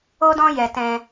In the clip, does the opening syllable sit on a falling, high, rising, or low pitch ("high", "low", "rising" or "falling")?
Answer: high